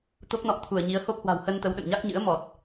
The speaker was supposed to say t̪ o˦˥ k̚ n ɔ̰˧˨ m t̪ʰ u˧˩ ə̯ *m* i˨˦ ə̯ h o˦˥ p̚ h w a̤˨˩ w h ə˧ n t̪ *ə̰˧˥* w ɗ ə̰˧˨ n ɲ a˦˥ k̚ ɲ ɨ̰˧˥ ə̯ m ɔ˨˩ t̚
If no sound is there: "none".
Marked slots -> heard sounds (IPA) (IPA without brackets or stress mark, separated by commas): ɲ, ə˨˦